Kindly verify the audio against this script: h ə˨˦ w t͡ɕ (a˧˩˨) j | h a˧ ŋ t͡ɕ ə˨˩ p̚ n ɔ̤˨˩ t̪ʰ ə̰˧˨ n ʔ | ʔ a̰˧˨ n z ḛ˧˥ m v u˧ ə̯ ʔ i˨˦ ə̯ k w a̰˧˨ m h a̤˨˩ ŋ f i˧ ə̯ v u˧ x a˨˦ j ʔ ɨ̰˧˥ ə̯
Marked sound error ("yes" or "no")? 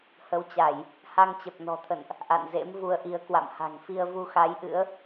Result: no